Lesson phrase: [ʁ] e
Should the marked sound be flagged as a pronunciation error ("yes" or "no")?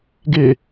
yes